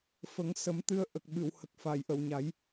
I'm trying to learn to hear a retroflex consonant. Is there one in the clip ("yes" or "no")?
no